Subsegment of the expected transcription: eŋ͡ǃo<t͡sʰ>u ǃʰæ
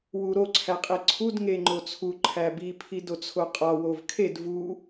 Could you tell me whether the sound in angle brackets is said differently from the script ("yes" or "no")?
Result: no